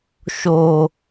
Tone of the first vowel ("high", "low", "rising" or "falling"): low